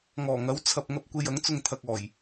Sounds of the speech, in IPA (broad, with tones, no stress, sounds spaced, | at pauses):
ŋ ɔː˨˩ ŋ ɐ˨˥ w t͡sʰ ɐ˨ p̚ ŋ ɐ˧ p̚ kʷ e˨ j ɐ˨˥ ŋ t͡s ʊ˨ ŋ t̪ʰ ɐ˨ k̚ ɔː˨˩ j